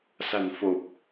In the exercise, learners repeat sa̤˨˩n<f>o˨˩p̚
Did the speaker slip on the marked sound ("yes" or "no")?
no